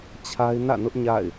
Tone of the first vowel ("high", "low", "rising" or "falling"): high